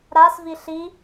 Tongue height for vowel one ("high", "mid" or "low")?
low